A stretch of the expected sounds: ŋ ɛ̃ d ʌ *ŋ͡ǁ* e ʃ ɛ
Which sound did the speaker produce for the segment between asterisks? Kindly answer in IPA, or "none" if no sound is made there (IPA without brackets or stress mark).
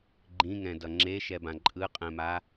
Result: ŋ͡ǁ